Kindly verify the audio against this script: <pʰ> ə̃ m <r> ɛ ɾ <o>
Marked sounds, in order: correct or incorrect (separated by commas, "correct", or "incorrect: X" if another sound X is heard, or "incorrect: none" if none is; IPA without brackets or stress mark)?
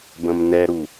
incorrect: b, incorrect: n, incorrect: u